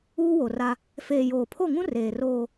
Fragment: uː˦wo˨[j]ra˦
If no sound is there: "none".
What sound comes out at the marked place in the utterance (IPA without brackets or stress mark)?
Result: none